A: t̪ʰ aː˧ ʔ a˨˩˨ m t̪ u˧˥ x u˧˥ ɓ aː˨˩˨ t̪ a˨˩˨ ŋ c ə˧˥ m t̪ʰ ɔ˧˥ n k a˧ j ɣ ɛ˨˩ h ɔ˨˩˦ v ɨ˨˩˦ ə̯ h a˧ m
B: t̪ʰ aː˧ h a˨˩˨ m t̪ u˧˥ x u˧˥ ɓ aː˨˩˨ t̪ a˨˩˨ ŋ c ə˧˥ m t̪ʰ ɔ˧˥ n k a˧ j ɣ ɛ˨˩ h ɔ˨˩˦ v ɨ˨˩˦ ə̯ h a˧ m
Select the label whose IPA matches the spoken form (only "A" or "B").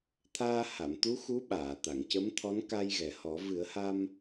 B